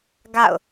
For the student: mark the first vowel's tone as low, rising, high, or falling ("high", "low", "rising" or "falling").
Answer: falling